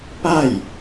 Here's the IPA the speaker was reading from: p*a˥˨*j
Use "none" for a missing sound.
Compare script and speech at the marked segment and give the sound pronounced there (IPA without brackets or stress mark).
a˥˨